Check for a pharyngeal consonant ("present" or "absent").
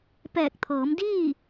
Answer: absent